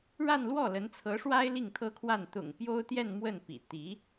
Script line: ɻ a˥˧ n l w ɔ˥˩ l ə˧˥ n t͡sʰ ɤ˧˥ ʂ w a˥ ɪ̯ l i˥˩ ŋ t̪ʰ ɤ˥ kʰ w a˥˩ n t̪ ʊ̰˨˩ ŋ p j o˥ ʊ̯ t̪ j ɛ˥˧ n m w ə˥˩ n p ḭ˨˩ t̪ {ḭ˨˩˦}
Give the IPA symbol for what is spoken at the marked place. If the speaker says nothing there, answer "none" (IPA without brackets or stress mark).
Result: i˧˥